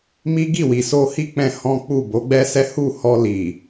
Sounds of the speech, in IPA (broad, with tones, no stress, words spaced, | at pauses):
mi˦ɡi˦˨ wi˨so˧hi˦k͡pɛ̃˧ hɔ̃˦k͡pu˦˨ bo˨˦ɡ͡bɛ˦sɛ˦ hu˦˨hɔ˧li˨